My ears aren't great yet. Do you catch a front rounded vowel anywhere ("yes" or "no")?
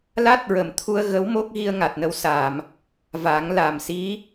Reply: no